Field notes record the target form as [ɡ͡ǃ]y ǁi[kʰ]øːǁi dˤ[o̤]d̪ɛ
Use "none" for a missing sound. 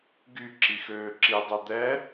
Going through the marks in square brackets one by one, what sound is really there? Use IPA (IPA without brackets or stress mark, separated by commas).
ɡ, x, o